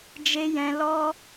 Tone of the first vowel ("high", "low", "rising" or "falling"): high